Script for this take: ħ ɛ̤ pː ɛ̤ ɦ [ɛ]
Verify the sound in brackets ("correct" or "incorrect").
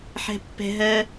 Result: incorrect